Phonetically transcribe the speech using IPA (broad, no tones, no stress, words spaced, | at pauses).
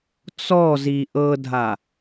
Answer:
t͡sɔzi ʔɤdʱa